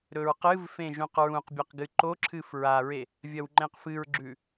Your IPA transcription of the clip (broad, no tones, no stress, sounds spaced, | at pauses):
ɾ ɵ ɹ q ɨ v f ẽ ʒ ũ q ɹ ũ q bʲ ɐ q ɡ ɨ ǃ o ǁʰ ɨ f ɹ a ɹ e | vʲ ɐ w ŋ͡ǃ ẽ q f ɨ ɹ ɡ͡ǁ ʉ